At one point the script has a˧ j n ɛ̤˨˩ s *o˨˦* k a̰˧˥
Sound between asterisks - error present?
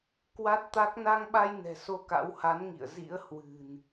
yes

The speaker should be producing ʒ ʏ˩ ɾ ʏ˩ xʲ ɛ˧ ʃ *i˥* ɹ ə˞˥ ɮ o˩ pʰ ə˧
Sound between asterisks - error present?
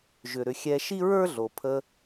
no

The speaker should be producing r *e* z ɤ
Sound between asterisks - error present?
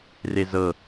no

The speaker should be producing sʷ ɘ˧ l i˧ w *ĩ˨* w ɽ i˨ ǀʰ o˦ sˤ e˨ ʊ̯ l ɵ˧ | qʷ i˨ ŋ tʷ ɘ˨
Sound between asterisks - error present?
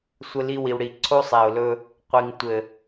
yes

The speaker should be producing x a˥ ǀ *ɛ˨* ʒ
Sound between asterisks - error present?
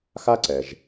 no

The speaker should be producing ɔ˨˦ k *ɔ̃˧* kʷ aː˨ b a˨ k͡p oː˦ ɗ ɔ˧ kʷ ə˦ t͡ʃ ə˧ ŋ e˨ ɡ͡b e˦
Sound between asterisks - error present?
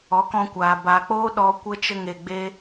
no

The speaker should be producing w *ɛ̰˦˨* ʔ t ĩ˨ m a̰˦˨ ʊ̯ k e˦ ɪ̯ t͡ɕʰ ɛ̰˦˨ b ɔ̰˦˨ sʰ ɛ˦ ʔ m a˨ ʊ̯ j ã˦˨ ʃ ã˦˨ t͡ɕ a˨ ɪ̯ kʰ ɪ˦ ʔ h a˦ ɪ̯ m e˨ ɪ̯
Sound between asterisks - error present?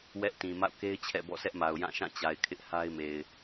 yes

